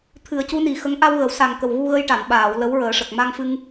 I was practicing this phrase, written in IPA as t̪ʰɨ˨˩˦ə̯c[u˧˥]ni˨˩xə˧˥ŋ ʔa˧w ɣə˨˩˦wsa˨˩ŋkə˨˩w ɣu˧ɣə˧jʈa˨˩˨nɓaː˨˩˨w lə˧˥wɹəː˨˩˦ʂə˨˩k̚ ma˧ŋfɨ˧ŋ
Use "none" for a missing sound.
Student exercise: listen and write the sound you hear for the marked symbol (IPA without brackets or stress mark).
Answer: u˧˥